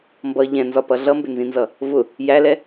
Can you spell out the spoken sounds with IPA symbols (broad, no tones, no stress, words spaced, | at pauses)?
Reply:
mbʌ ʎɛ̃nzɒpʌ ɮʌmbɪnzĩnzʌ | vʊ | jælɛ